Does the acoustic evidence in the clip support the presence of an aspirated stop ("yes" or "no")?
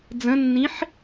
no